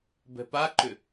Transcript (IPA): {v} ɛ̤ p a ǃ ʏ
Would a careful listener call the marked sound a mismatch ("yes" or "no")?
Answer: yes